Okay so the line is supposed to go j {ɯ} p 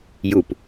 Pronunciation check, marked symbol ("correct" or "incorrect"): incorrect